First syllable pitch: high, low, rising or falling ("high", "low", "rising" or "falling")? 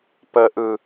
low